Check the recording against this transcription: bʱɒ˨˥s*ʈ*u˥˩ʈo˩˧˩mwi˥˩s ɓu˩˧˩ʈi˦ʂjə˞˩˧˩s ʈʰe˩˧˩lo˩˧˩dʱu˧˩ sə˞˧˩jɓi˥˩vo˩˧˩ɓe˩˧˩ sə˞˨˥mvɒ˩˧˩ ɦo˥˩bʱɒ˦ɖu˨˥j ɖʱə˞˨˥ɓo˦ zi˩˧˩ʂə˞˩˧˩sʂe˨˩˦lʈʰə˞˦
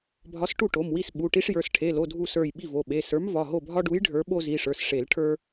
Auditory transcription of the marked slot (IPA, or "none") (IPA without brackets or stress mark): ʈ